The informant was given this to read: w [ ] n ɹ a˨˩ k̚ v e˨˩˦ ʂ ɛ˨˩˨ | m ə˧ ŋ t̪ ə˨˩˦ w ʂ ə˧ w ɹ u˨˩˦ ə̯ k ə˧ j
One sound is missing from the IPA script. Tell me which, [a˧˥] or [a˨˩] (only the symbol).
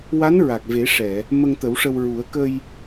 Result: a˧˥